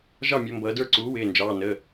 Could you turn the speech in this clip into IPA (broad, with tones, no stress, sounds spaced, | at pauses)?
ʒ ɑ˥˩ mʲ ʌ˩˧ m b ʌː˩˧ d ə˞˥˩ ǀ uː˩˥ w ɪː˩˧˩ n d͡ʒ ɑː˩˧˩ n ə˩˧˩